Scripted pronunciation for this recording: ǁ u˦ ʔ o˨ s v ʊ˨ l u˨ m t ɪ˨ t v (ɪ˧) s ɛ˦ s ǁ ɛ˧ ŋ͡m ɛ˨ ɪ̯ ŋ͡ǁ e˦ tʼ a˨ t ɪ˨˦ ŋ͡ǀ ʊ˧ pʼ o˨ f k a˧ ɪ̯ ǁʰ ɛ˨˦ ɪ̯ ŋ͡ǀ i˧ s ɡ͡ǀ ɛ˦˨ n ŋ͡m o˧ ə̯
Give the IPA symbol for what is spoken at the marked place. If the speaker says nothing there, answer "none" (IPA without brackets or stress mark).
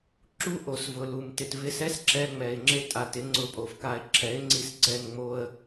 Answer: ɪ˧